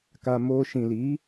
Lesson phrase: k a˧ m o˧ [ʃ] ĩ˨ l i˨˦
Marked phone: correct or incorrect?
correct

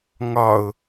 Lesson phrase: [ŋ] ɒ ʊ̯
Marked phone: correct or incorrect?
correct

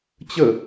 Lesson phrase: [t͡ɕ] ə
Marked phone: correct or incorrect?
correct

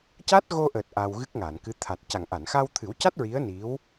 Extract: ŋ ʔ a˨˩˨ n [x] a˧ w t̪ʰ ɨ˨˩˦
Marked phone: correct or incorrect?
correct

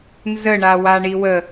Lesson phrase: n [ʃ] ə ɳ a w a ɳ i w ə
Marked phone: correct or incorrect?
incorrect: z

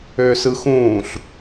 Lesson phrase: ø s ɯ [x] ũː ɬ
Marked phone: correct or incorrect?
correct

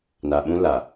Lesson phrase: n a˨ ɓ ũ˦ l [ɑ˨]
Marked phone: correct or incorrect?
incorrect: a˨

